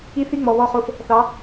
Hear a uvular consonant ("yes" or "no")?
yes